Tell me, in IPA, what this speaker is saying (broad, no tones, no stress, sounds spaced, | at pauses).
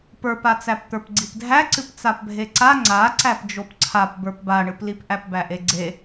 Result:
p ə˞ p a t͡s æ p t̪ ə˞ p ɡ͡ǀ i p dʱ æ ǀ ɨ p t͡s a p bʱ e ǀ a ŋ͡ǀ a ǀ æ p d͡ʒ o p ǀʰ a p b ə˞ p b a ɳ ɨ p l i p ʔ æ p b æ ʔ e ɡ͡ǀ e